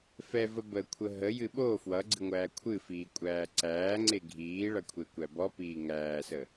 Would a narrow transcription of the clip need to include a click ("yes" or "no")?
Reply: yes